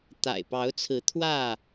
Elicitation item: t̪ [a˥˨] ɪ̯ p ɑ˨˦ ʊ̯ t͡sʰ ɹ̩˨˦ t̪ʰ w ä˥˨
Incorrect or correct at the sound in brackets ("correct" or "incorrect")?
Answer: incorrect